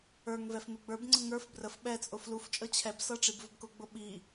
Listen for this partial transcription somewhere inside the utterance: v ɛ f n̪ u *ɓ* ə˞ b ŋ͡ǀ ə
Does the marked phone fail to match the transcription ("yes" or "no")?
yes